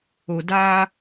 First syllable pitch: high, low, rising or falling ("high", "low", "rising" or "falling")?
low